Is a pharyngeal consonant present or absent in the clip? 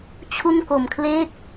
absent